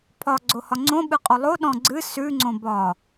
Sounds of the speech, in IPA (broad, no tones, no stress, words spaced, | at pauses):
pʰɒ ɡ͡ǀohɒŋ͡ǀõ ɓɨqʼolˠo ɗɔ̃ɡ͡ǀɨ sʉ ŋ͡ǀõbɒ